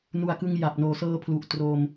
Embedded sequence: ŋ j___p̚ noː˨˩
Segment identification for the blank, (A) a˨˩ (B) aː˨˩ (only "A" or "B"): A